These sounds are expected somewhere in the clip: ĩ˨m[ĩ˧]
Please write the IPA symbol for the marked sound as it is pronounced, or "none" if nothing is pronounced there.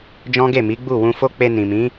ĩ˨˦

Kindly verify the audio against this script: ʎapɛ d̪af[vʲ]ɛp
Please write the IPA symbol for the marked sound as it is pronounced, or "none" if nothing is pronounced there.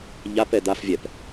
vʲ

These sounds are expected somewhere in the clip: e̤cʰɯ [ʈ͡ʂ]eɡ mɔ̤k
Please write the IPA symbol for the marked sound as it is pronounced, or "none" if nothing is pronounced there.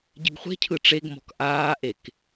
ʈ͡ʂ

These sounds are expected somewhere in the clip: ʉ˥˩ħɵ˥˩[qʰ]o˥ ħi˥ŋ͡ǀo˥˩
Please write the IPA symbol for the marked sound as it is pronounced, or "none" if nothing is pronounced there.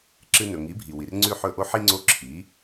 ʔ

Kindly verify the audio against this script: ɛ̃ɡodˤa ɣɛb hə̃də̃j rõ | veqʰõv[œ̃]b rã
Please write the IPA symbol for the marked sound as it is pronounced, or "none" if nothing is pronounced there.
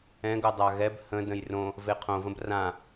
ə̃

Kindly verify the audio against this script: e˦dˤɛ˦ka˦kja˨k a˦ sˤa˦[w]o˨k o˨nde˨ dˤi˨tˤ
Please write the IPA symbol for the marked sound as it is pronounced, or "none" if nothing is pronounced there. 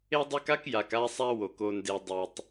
w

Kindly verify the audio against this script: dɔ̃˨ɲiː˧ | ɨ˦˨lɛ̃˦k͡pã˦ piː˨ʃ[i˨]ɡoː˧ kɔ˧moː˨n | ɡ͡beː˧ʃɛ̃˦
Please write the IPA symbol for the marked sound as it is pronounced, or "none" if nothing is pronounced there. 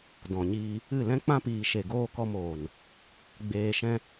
e˨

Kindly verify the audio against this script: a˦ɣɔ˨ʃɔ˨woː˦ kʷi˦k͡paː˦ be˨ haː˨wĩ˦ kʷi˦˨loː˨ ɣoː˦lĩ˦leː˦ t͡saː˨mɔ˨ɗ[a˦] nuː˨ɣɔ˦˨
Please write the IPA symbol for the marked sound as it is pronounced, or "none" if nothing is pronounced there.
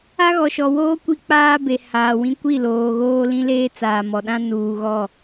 ã˦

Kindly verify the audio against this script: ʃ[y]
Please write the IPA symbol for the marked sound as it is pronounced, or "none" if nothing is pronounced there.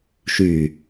y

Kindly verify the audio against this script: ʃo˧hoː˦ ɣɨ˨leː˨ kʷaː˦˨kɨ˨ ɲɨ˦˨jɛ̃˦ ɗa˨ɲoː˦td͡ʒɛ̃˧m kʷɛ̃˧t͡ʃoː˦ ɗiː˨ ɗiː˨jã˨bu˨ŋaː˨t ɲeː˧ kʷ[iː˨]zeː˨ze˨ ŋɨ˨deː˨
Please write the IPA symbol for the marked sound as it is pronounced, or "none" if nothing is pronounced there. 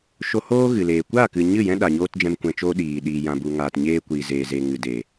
iː˨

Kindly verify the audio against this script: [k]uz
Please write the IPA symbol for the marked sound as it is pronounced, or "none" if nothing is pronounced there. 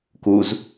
k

